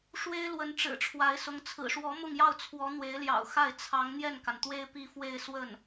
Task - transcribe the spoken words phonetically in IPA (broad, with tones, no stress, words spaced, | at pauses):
ʂwe˥ɪ̯ lwə˧˥nʈ͡ʂɻ̩˨˩ʈ͡ʂʰwa˧˥ɪ̯sʊ˧˥ŋ t͡sʰɹ̩˨˩ʂwɔ˧˥ mʊ˥˧ŋjɑ˥˩ʊ̯t͡sʰwɔ˧˥ n̪we˧˥ɪ̯ljɑ̰˨˩ʊ̯xa˥˩ɪ̯ t͡sʰɑ˧˥ŋ n̪jɛ˥˩nka˩nt̪we˥ɪ̯ pi˥˧fwe˥˧ɪ̯swə˥˩n